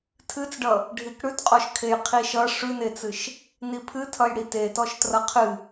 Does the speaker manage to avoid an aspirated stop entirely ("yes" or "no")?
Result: no